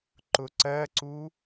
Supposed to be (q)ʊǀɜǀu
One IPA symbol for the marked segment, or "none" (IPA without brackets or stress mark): ǃ